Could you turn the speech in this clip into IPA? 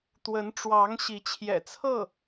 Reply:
t̪wə˧˥nʈ͡ʂwɑ˧˥ŋ ɕi˧˥t͡ɕʰjɛ̰˨˩t͡sʰɤ˥˩

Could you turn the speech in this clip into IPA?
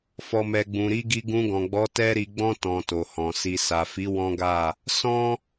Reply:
fɔ˨mɛ˨ ɡ͡bũ˨ɾi˨˦ɡi˧ ɡũ˧ɡɔ̃˨ɡ͡bɔ˨˦ tɛ˦ɾi˧ ɡ͡bɔ̃˦ tɔ̃˧to˨hɔ̃˨ si˨sa˨fi˨˦ wɔ̃˦ɡa˦˨ | sɔ̃˦

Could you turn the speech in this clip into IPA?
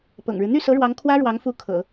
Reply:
pɤ̰˨˩ŋɻɻ̩˦ n̪y˥˩sɤ˧˥ɻwɑ˧˥ŋ kʰwä˥ɻwɑ˧˥ŋfu˧˥ kʰɤ̰˨˩˦

